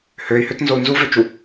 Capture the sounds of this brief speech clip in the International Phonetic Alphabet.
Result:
høi̯høt nzou̯nzuvøt͡ʃu

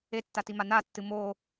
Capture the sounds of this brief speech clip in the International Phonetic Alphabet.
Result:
etːatima natːɨ mo

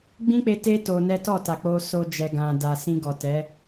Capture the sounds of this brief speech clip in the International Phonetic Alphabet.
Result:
ɡ͡bĩ˦k͡pe˧ te˦ to˧nɛ˦ tɔ˦˨ ta˨k͡po˧ so˧d͡ʒɛ˨ ɡã˨da˨ sĩ˧ɡɔ˨tɛ˨˦

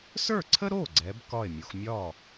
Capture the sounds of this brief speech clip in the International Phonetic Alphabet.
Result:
sə˞˥˩ǀʰə˥ɾo˥˩ ɡ͡ǀɛ˧˥b kɒ˥˩e̯mʲo˩˧x mʲɒ˥˩

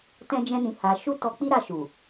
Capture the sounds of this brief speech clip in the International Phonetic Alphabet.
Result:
tɛ̃˦d͡ʒɛ̃˦nĩ˧ ha˧ ʃu˦tɔ˧k͡pi˦ɾa˧ ʃu˨

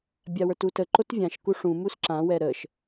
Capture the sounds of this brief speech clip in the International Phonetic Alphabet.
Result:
bʲawə˞tutə ǃotvʲãʃ kuʂũ musǁã wɛɾəʃ

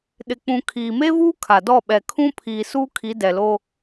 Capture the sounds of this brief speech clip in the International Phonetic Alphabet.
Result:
ɗɪ˨k͡pũ˨ kʰiː˨me˦vuː˦ kʰa˨dɔ˦˨ɓɛ˨ kʰũ˦pʰiː˨ suː˦kʰi˨˦dɛ˨ lo˦

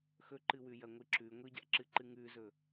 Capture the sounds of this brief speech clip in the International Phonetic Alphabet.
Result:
xɵǃɨ wʉjɐŋʷɨǁʉ ŋʷiɟa̰ǁɨǃɨ ŋʉzɵ

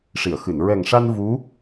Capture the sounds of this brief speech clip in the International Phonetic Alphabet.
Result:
ʂi˨˩˨ə̯xɨ˨˩˨n ɹɛ˨˩ŋʂa˧n vu˧˥

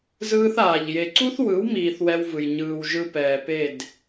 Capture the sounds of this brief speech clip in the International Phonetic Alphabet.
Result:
zɯː˦θaː˨ʎ je˨ǀu˦θwɯ˨˦wmiː˨θ wɛ˦wvɯ˨j ɲɯː˨w ʒɯ˦pɛː˨ pe˦˨d

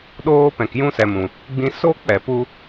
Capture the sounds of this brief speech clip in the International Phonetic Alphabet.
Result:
ɗoː˧ pɛ̃˨kjũ˧sɛ˨mũ˨ | ɡ͡bĩ˧ so˦k͡pɛ˨pu˧

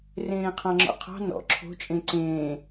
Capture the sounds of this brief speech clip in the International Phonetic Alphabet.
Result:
rẽːqʰɑ̃ŋ͡ǁɔ̰qʰɑ̤ nɔ̰ ǁʰo̤ t͡ʃʼẽǀẽː

